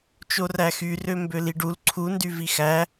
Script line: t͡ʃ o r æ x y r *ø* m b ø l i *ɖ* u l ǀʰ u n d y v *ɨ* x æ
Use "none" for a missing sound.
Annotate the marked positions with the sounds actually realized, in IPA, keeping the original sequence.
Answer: ø, ɖ, i

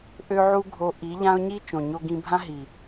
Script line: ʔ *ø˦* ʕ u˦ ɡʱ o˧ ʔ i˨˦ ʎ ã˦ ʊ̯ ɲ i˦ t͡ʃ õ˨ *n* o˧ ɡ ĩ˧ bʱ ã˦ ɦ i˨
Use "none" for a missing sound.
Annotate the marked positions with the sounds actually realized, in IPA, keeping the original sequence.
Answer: ø˦, ɲ

